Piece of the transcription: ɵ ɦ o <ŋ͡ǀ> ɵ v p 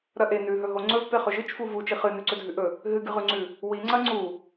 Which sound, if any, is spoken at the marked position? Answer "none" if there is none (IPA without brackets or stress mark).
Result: ŋ͡ǀ